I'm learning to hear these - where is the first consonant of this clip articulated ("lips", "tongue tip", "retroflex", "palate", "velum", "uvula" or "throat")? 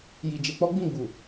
palate